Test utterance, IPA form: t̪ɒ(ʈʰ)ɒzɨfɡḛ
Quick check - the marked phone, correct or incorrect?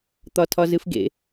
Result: incorrect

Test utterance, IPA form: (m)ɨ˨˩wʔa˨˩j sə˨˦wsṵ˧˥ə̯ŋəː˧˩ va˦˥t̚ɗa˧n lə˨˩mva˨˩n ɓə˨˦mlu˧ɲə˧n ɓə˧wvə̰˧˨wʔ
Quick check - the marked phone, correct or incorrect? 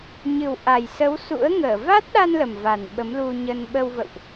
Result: incorrect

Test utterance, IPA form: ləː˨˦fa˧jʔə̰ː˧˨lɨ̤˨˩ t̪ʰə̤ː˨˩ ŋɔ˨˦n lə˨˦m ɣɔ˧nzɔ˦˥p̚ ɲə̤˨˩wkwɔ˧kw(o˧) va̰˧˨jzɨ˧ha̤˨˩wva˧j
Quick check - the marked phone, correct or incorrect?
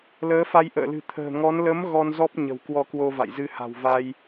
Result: correct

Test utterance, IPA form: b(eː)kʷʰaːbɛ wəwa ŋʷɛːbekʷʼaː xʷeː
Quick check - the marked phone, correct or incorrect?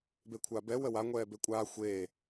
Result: incorrect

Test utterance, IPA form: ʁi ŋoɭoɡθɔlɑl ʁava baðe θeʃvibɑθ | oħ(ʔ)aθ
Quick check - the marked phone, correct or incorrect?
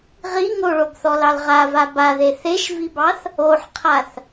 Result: incorrect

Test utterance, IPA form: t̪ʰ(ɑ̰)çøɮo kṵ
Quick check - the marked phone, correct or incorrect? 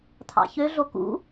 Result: correct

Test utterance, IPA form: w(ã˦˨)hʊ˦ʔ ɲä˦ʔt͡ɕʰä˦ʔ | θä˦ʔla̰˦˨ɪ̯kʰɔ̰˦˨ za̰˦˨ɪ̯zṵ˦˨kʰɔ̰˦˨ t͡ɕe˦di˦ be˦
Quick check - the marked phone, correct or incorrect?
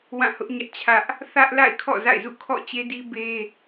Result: correct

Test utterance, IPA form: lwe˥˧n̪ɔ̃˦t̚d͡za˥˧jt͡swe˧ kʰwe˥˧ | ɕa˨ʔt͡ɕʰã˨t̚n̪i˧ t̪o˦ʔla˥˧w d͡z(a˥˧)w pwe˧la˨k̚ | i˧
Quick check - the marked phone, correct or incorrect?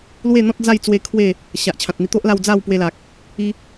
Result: correct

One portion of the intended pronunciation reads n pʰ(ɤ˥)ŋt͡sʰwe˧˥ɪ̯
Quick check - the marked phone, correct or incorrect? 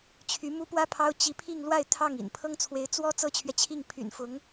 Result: correct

